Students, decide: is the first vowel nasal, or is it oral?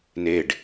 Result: oral